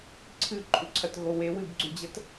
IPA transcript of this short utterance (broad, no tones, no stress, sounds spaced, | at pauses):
ǀʰ ɨ ǃʼ u ǀʰ ɐ t ɣ o w e w ɨ b ɡ͡ǀ ʉ d͡ʑ ɐ t